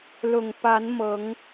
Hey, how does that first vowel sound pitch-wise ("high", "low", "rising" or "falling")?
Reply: low